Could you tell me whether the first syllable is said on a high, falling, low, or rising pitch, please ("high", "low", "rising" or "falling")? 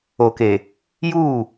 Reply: low